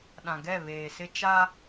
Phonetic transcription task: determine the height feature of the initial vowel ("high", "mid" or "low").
low